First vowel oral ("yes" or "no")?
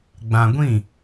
no